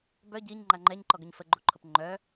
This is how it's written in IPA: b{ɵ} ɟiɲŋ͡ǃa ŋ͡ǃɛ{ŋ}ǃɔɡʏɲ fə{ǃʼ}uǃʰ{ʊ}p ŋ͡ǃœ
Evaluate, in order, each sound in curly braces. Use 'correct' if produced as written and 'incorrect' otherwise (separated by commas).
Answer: incorrect, incorrect, incorrect, correct